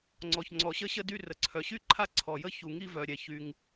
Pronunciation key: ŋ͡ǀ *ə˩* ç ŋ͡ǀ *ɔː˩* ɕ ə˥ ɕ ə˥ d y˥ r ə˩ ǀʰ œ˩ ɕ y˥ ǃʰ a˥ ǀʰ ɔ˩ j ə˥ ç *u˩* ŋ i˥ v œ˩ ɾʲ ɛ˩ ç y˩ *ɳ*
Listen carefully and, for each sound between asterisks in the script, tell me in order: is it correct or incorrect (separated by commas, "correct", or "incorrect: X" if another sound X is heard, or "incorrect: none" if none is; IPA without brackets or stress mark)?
incorrect: ɔ˩, incorrect: ɔ˩, correct, incorrect: ŋ